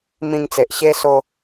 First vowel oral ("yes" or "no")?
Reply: no